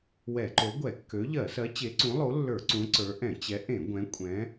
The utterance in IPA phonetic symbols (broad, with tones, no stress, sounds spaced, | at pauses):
w ɛ˧˩˧ ǃ o˨˥ ɡʷ ɛ˧˩˧ kː ø˨˥ ʎ ɜ˧˩˧ s ɜ˨˥ t͡ɕ e˨˥ ǀ ũ˨˥ lˠ o˨˥ lː ə˞˧˩˧ ǀ ũ˨˥ ǀ ə˞˨˥ ʔ ɛ̃˧˩˧ t͡ɕ ɛ˨˥ ʔ ẽ˧˩˧ ɡʷ ɛ̃˨˥ kʷʼ ɛ̃˨˥